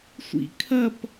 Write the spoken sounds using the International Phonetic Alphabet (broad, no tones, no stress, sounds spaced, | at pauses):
sʷ ḭ kʰ ɐ p